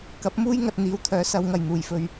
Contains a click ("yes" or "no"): no